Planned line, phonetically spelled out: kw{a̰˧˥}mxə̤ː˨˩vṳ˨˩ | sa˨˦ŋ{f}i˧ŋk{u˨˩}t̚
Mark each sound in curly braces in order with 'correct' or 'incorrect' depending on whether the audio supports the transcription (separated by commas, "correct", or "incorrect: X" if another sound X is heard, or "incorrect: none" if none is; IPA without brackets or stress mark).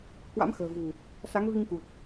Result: correct, incorrect: v, correct